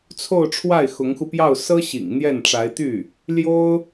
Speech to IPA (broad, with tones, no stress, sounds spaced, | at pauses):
t͡sʰ o˥˧ ʊ̯ ʈ͡ʂʰ w a˥˩ ɪ̯ x ʊ˧˥ ŋ x u˧ p j ɑ˥˩ ʊ̯ s ɤ˥ ɕ ḭ˨˩ ŋ n̪ j ɛ˥˩ n ʈ͡ʂ a˧˥ ɪ̯ t̪ y˥˩ | l j o˥ ʊ̯